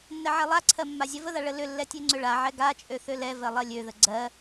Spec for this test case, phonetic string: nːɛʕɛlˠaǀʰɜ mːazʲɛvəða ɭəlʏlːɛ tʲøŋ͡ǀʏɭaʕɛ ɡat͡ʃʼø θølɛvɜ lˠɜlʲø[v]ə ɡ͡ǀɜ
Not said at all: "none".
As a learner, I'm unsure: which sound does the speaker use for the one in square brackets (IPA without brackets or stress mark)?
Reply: ð